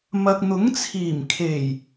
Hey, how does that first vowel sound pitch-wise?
low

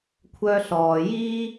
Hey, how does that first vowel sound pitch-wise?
high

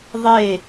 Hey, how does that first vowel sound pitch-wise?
falling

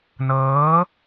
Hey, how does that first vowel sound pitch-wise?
rising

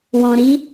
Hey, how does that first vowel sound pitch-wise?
low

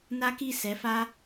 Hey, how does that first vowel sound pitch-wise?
high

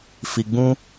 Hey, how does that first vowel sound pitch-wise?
low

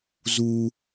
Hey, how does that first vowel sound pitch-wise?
high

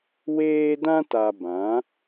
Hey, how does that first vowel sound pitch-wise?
high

